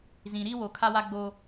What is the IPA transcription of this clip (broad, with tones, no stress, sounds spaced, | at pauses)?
z ĩ˨ ɾ i˦ w o˨ kʰ a˦ w a˦ ɡ͡b o˦